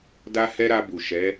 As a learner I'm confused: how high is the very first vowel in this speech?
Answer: low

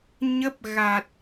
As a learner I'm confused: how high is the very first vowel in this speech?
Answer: mid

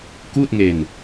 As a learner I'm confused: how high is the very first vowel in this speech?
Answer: high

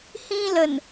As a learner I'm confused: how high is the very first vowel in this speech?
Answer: high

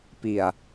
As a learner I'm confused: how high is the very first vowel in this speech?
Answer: high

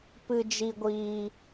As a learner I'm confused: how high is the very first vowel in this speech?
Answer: high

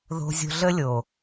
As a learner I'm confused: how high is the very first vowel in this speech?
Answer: mid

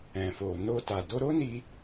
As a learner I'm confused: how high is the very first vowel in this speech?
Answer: mid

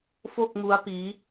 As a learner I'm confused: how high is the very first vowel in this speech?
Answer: mid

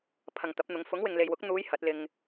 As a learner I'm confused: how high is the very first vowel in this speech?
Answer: low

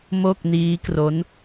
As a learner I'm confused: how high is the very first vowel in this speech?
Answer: mid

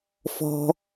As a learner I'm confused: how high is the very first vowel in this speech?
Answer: mid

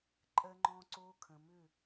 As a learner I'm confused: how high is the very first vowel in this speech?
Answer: mid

